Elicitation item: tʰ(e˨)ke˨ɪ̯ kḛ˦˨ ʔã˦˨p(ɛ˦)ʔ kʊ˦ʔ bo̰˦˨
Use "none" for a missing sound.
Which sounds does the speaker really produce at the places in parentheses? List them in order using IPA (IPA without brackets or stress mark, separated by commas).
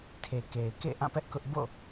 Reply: e˨, ɛ˦